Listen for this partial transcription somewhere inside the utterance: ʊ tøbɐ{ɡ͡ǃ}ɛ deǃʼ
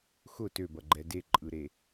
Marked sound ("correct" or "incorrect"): correct